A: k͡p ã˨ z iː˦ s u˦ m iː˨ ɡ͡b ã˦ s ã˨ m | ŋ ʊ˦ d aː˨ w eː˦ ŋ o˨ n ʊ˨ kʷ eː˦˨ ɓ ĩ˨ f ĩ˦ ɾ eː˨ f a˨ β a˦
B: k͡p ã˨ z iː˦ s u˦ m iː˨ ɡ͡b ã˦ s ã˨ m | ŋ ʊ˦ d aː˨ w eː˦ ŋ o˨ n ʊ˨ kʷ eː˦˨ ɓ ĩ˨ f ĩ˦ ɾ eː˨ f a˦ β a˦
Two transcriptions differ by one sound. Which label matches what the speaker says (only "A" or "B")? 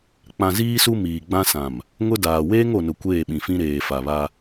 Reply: A